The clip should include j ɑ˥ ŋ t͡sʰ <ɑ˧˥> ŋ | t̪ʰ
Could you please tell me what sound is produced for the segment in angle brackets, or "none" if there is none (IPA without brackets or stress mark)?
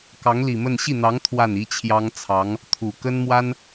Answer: ɑ˧˥